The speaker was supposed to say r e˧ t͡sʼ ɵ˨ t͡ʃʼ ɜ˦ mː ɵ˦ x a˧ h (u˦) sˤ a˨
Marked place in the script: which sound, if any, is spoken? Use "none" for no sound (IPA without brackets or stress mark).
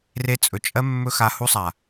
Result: u˦